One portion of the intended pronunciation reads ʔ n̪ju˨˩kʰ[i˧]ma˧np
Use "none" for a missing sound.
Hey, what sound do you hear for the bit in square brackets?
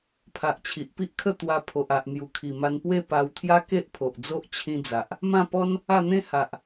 i˨˩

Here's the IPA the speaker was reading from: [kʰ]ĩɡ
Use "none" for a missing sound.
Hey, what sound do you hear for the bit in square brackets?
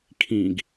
kʰ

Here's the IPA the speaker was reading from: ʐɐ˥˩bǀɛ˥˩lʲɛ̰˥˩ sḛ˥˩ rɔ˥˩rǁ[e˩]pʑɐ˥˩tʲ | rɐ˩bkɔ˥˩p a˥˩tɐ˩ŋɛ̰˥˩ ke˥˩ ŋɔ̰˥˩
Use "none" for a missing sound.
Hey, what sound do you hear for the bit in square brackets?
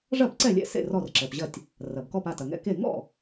ɛ˩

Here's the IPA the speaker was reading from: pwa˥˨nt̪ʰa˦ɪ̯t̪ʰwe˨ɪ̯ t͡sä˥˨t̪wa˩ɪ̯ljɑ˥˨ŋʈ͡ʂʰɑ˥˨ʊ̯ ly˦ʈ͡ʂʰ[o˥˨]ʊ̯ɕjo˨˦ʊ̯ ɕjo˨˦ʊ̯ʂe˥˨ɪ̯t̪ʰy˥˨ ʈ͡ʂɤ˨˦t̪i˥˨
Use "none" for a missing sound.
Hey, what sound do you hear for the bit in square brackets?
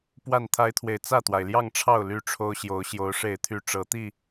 o˦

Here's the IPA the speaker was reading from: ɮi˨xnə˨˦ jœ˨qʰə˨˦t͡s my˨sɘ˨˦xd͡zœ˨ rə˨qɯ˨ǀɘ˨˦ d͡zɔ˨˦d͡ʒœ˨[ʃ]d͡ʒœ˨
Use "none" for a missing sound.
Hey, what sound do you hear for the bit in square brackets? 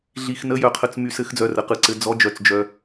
t͡s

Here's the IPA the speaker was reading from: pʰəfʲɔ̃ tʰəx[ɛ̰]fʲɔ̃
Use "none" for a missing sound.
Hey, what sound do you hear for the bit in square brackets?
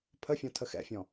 ɛ̰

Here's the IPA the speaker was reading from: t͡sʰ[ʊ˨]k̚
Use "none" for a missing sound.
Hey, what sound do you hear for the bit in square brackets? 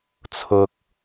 ʊ˨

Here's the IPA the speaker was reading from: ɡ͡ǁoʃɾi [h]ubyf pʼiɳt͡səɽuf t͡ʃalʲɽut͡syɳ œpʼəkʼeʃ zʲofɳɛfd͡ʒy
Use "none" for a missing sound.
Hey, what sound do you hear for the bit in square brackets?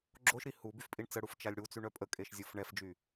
h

